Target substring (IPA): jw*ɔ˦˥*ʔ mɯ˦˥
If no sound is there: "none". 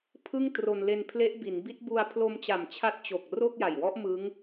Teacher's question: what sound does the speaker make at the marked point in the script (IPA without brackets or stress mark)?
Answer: ɔ˦˥